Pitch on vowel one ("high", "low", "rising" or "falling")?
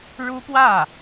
high